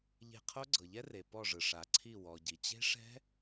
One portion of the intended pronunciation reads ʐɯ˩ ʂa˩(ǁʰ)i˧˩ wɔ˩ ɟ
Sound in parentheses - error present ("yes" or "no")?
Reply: yes